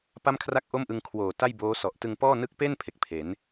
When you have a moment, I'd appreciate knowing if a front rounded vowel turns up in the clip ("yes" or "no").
no